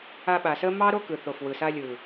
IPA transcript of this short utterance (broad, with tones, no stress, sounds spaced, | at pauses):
a˧ ɓ a˨ s ə˦ m ɑ˦ ɾ o˦ k ɯ˨ θ o˨ f w ɯ˨ s a˧ lʲ ɯ˨